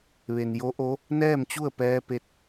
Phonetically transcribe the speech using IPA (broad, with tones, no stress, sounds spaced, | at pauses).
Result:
ʋ e˩ n j o˧˥ ʔ o˧˥ | n ɛː˥˨ m t͡ɕ u˥˨ ə̯ p ɛː˧ p e˧ t̚